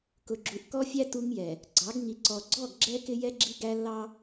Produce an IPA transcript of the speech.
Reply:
kʊ˨ɡ͡ǁu˨ʔkɔ˦fʲæ˦ tu˦ŋjɛ˨ | ɡ͡ǀɑ˨˦ɡŋi˨ǀɔ˨ ɡ͡ǀɔ˦˨ɡɡ͡ǁɛ˦ kɪ˦jɛ˦ ɡ͡ǁi˦ɡæ˦ lːɑ˦

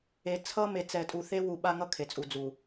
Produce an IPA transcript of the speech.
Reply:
e˨ t͡sʰʌ˦me˨ t͡sɛ˨tʼu˨θe˦ wu˨ ɓa˦ŋʌ˦ kʰe˨t͡sʼu˨ d͡zu˨

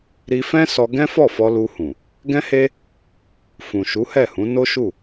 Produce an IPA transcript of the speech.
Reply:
ɾi˧fɛ̃˦ sɔ˧ɡɛ̃˦ fɔ˦˨fɔ˧lu˧hũ˨ | ɡɛ̃˦he˦ | fũ˨ʃu˨˦hɛ˦˨hũ˨˦ no˦ʃu˦˨

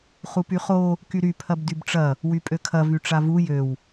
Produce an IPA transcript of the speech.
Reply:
χupyχo | kyɾy pʰɐbdybʈ͡ʂɐ | wypʼøkʰɐ vyʈ͡ʂavu jøw

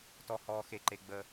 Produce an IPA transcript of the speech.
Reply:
tɔ˧hɔː˧xe˧ǃe˧ ɡ͡bə˧

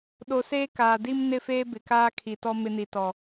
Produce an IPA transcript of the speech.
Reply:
ɗo˨seː˦ kaː˨di˦m nɪ˦˨feː˦ bɪ˨kaː˦kʰi˨tɔ˦ mɪ˦ni˨tɔ˨

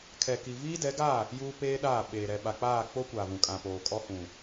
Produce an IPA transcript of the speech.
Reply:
kʰɛ˨ki˨ viː˦dɛ˨˦ɡaː˦˨ | juː˦peː˦ɗaː˦˨ ɓeː˨ ɾɛ˨ ɓa˨k͡paː˦˨ k͡po˦kʷaː˨vũ˨ kʼã˨poː˨ kʼɔ˦hũ˨

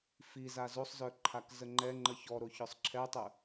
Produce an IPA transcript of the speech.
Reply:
fiza zosˤzœ ǃʰakzəŋ͡ǃɛŋ͡ǃə çɔɾo çœsˤǁʰɛtˤœ

